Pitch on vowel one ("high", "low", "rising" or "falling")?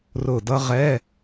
low